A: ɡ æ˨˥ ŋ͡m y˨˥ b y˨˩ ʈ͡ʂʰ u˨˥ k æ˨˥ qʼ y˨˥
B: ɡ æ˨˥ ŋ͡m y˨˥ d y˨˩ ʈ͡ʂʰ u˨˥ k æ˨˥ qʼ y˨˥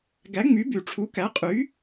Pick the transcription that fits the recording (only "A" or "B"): A